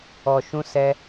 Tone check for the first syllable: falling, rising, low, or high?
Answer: low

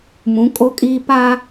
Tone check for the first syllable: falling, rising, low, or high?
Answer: rising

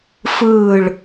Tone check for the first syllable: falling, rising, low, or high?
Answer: falling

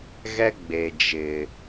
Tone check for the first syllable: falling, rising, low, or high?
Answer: high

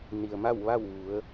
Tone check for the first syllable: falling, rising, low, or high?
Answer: low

